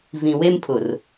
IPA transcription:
v ĩ˨ w e˦ m pʰ ʊ˨ r

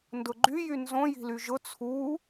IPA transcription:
n d ʊ ɡ͡ǃ y j y n z õ j i̤ l y ʒ ʊ t͡sʰ u

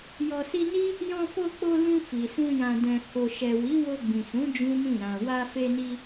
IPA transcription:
j ɔ˨ s i˧ n i˦ | j ɔ̃˧ f o˧ k͡p o˧ l ũ˧ f i˨ s ũ˧ j ã˨ d ɛ̃˨ h o˨ ʃ ɛ˨ w i˨˦ w o˧ ɡ͡b ĩ˨ s ũ˨˦ d͡ʒ ũ˦ m ĩ˦˨ ɾ ã˨ w a˧ f e˧ n i˧

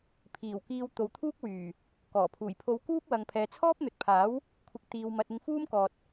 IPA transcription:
pʰ iː˨˩ w k iː˧ w t̪ o˨ w t̪ʰ uː˥ k̚ w yː˨˩ | k ɔː˨˩ pʰ uː˨˩ j pʰ o˧ w k uː˥ p̚ w ɐ˨ ŋ pʰ ɛː˨ t͡sʰ ɔː˥ p̚ n̪ ɵ˨ t̚ pʰ aː˨˥ w | kʷʰ ɪ˨ k̚ t̪ iː˨ w m ɐ˨ t̚ ɪ˧ ŋ f uː˥ m k ɔː˨ t̚

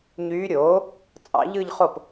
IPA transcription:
ɲ yː˧˥ ɾʲ oː˩˥ | t͡sʼ ɑ̰˧˥ ʎ ɯ˥˧ ʎ χ o˥˩ p

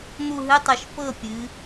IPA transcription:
n̪ u˦˨ ɦ ɨ˧˥˧ tˤ ɨ˧˩˧ ʃ p ɤ˦˨ pʲ ɨ˩˧

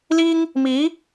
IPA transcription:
l i˥ ŋ | m i˧˥

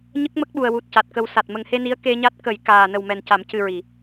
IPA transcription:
ɲ ə˦˥ k̚ m ə˦˥ k̚ ɓ u˨˩ ə̯ w u˨˩ t̚ c a˨˩ t̚ k ə˨˩ w s a˨˩ t̚ m ə˨˩ ŋ h e˧ n i˧˥ ə̯ k e˧ ɲ a˦˥ t̚ k ə˨˩˦ j k aː˨˩ n ə˨˩ w m ɛ˨˩ n c a˨˩˦ m c ɨ˨˩ ɹ i˨˩˨

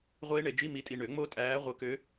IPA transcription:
ʁʷ eː˦˥ ɳ e˨˩˦ d͡ʒ i˧˥˧ m i˨˦ tʼ i˧˩ ɳ ø˨˩˦ ŋ͡m o˦˥ tʼ æː˨˦ ʁʷ ə˨˦ k ø˨˦

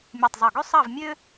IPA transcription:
mʲ u˥˧ tˤ zˤ o˥˧ ɡ ø˥ sˤ ɑ˥˧ v mʲ ø˥

